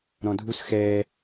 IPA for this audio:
ɾ ɔ̃ dʱ u s x ɛ

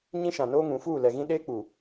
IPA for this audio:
ɲ ĩ˦ ʃ ã˨ n oː˦ ŋ ũ˨˦ f uː˦˨ l ɛ˨ ɣ ĩ˦ ɗ eː˦ k͡p uː˨

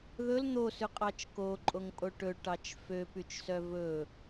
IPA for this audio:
ð ɵ l n̪ o s ʉ qʼ ɑ t͡ʃ k o ǃʼ o ŋ pʼ o ʈ ɵ ʈ ɑ t͡ʃ f ø p y t͡ʃ s œ v ɵ

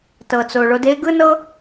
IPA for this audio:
t ɤ˨ t͡s o˨ ɭ o˧ d e˦ ɡ ɯ˦ n ɤ˦

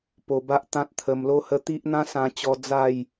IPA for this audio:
p o˧ b a˦ ʔ t̪ ã˦ t̚ t̪ʰ ə˧ m l o˦ h ə˦ t̪ i˦ ʔ n̪ ã˦ s ã˧ t͡ɕ ɔ˧ d͡z a˥˧ j

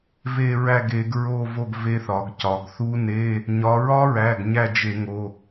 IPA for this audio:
v e˦˨ ɹ æ˦˨ ɡ e˩˧ ɡ ɹ o˦˨ v o˦˨ ɡ v e˦˥ θ ɒ˩˧ ɡ c ɒ˩˧ ɡ θ u˦˥ n e˧˥˧ | ɲ ɒ˩˧ ɹ ɒ˦˥ ɹ æ˩˧˩ ɡ ɲ æ˦˨ d͡ʒ e˧˩˧ ŋ o˩˧˩

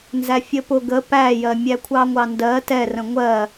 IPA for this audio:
n z æ fʲ ə p ʊ ɡ ə p æ j ɜ mʲ æ kʷʰ ɑ ŋʷ ɑ n d ɜ t ɛ r ə̃ ŋʷ ɜ

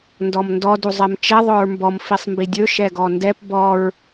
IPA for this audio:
n d ɔ m n d ɔ d u zˤ ɛ m t͡ʃ ɛ ðˤ ɵ ɹ m b ɔ m f i sˤ m b i dʲ ɵ ʃ ɛ ɡ ɔ n d ɛ p b ɔ ɹ

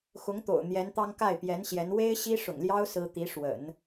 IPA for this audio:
x ʊ˧˥ ŋ t̪ o̰˨˩ ʊ̯ n̪ j ɛ˧˥ n t̪ ɑ˥ ŋ k a˥˩ ɪ̯ p j ɛ˧˥ n ɕ j ɛ˧˥ n w e˥ ɪ̯ ɕ i˥ ʂ ʊ̰˨˩ ŋ l j ɑ˥ ʊ̯ s ɹ̩˥ t̪ i˧˥ ʂ w ə̰˨˩˦ n

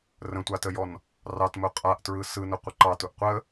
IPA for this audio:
r ə̃ tʷ a t ə j ɔ n | r ɑ t m ʊ qʼ a ʔ t ɹ ɯ s ɯ n ʊ qʷ ə ǃ ɑ t ʊ ʔ qʷ ə

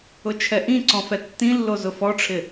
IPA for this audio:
ʊ t͡ʃʰ ɛ ʔ ĩ ǀ ɔ̃ f ɛ tː ĩ lː o z ʊ f ɔ ʈ͡ʂʰ ɪ

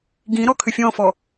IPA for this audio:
ɡ ĩ ɾ ɔ kʰ ʏ fʲ ɔ̃ f ɔ

